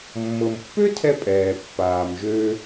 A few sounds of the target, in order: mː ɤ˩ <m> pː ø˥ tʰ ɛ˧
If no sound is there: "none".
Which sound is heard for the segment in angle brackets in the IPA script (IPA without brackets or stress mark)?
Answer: m